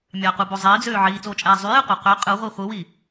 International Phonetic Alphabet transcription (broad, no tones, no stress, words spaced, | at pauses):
mʲɑqubo zˤiːd͡zøː ʕiːt͡soːt͡ʃʼæː zˤyjeqʷɑ qø qʼɯʁʷi χʷɯwi